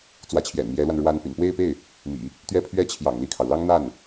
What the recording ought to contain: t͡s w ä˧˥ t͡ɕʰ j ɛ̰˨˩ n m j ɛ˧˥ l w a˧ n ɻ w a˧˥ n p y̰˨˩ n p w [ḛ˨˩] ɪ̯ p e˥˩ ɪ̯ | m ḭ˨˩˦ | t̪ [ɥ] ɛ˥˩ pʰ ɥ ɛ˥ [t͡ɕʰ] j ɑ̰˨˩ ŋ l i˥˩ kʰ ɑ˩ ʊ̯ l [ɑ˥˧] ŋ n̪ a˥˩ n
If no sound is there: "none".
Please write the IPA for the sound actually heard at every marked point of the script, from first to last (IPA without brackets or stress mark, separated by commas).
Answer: e˥˧, ɥ, t͡ɕʰ, ɑ˥